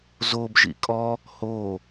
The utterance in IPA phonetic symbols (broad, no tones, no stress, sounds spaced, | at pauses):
z o b ʒ ḭ kʼ ɔ | h o